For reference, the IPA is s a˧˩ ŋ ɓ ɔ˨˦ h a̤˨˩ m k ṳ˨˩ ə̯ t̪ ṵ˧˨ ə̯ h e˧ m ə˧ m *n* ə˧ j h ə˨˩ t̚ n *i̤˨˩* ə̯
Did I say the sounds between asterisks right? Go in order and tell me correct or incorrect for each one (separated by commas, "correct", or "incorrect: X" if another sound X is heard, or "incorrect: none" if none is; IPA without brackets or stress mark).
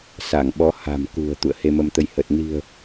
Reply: incorrect: t̪, correct